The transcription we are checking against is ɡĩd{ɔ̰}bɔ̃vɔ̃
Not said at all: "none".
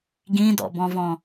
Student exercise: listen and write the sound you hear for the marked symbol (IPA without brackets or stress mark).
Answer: ɔ̰